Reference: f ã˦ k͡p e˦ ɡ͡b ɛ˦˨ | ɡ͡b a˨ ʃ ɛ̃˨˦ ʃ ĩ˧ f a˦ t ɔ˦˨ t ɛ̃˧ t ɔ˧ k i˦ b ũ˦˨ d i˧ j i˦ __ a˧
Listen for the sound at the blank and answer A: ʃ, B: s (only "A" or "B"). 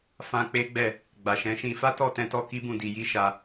A